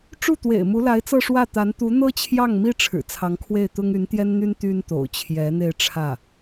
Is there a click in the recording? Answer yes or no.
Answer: no